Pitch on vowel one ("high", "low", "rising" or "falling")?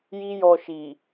high